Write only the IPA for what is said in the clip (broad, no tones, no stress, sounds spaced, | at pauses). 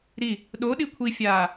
ɾ i | ɗ o ɗ i kʷʰ i fʲ aː